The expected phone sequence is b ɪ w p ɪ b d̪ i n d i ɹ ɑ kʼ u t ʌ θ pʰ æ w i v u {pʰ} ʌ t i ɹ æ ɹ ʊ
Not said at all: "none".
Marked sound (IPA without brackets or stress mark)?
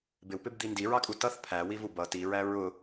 b